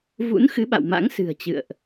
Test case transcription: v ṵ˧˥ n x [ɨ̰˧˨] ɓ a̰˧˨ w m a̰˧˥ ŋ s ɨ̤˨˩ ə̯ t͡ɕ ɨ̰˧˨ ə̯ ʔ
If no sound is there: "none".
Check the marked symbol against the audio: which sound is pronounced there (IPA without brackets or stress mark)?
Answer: ɨ˨˦